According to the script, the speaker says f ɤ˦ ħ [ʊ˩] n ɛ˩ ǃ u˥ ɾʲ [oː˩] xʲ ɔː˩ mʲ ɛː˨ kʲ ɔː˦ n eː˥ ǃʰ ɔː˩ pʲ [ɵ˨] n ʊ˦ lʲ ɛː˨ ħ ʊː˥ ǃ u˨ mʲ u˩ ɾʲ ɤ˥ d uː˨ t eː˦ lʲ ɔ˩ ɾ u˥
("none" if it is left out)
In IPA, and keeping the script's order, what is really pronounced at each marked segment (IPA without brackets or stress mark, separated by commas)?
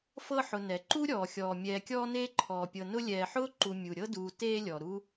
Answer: ʊ˨, ɔː˩, ɤ˨